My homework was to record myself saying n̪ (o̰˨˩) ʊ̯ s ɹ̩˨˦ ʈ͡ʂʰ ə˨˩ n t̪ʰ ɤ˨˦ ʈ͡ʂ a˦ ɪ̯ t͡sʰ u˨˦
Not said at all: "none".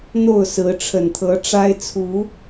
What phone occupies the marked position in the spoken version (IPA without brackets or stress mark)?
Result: o˥˨